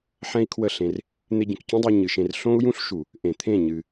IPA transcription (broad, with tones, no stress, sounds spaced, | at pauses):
ħ ɛ̃˦ i̯ kʰ w ə˦˨ ɬ ẽ˧ r | n̪ e˧ ɟ ə̃˨ k c ũ˦ dˤ u˧ ɲ ɨ˨ ʃ ẽ˧ r ɬ õ˦ u̯ j ũ˦ ɬ ʃ u˨ | ʔ ẽ˨ t̪ʰ ẽ˦˨ ɲ ɨ˧